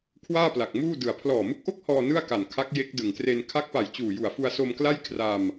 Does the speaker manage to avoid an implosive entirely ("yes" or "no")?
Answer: yes